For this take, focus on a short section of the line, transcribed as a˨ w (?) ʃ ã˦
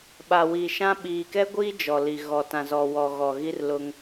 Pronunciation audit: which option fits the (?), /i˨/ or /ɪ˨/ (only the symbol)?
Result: i˨